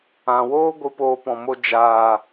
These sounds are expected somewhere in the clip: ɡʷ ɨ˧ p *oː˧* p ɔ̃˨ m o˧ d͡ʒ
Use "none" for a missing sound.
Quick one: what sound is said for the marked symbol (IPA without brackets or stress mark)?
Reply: oː˧